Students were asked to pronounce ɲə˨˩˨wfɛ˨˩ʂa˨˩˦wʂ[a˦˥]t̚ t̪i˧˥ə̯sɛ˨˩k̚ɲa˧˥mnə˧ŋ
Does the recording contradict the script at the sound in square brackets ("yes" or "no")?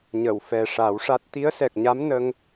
no